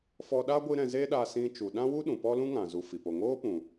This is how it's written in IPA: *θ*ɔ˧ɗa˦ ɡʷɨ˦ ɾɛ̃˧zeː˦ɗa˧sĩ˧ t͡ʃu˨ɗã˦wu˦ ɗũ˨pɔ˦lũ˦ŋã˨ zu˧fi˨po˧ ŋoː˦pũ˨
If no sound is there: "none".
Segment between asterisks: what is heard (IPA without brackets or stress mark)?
f